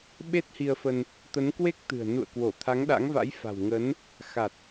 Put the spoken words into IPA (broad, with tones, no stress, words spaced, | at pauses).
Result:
ɓe˦˥t̚hi˧ə̯fə˧n | t̪ə˨˦nkwe˦˥k̚t̪ɨ̤˨˩ə̯ nṵ˧˨ə̯kwo˧˩ t̪ʰa˨˦ŋɗa̰˧˥ŋva̰˧˥j fa̤˨˩wŋə˨˦n | xa˨˩t̚